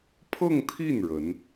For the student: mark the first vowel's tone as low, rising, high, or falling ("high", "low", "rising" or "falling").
falling